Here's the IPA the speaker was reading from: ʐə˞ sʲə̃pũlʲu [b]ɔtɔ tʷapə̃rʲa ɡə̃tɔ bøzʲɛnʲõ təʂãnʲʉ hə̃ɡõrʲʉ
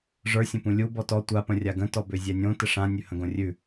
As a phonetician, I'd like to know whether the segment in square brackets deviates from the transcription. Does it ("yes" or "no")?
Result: no